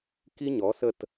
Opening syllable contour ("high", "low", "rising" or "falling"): high